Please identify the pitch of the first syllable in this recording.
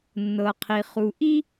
low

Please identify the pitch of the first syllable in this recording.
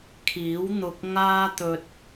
rising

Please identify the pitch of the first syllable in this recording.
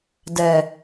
low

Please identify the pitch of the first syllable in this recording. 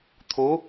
rising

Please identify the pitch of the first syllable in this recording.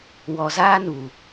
low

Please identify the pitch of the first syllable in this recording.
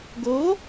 rising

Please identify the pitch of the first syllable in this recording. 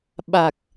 low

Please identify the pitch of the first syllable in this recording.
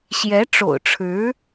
rising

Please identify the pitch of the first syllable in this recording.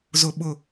high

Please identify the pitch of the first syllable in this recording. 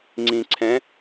low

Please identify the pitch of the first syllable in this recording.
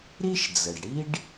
high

